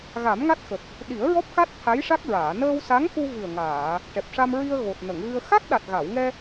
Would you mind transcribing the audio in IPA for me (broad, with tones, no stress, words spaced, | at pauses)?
ɣa˨˩˦mŋa˦˥t̚xə˨˩k̚ | ɗi˨˩˦ə̯ɹɔ˦˥p̚ka˦˥t̚ t̪ʰa˧˥jʂa˦˥k̚ɹaː˨˩˨ nəː˧wsa˧˥ŋku˧ vɨ˨˩ə̯ŋaː˨˩˨ | ʈɛ˨˩p̚ʂa˧mɹi˧ə̯ ɣo˨˩t̚ nə˨˩˨ŋɣɨ˧ə̯ xa˦˥k̚ɗa˨˩t̚ ɣa˨˩˨wŋɛ˧